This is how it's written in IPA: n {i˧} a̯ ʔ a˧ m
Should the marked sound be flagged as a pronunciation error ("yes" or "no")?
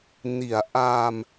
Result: yes